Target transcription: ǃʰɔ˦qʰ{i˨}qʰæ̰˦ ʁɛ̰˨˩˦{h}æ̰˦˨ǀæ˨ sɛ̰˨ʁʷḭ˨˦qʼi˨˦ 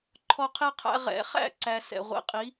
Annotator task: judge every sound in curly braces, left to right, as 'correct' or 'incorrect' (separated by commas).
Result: incorrect, incorrect